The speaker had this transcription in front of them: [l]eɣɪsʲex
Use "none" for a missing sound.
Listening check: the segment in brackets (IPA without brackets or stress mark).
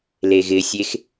l